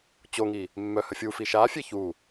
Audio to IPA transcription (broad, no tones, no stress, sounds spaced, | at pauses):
t͡ɕ o ŋ i | mː œ h ə fʲ u f i ʃ a fʲ e ç u